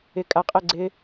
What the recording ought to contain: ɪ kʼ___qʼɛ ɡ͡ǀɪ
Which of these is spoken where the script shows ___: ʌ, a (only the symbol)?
a